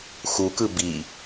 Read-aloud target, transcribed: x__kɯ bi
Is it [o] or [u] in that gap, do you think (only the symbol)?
u